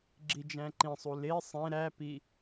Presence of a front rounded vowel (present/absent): absent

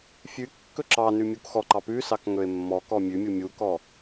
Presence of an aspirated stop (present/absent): absent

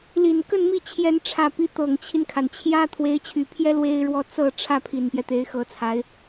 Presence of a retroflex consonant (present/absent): present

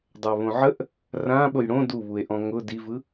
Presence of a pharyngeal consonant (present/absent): present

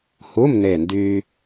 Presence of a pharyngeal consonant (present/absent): absent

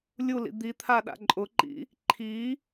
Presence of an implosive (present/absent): present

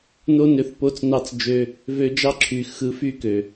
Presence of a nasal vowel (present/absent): absent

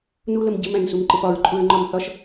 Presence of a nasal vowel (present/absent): present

